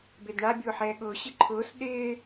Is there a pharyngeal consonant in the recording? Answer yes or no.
yes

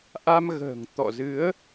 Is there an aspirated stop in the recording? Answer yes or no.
no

